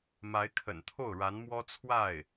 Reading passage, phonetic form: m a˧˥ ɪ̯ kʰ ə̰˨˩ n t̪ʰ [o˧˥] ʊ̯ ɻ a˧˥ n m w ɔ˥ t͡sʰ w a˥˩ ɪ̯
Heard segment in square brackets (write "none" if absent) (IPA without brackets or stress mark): o˥˩